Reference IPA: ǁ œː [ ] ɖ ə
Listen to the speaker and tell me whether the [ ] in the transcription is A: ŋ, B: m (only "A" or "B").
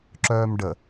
B